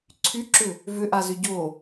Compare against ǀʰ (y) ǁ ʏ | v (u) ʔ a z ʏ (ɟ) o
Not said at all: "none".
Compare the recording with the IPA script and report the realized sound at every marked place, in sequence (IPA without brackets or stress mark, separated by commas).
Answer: y, ʏ, ɟ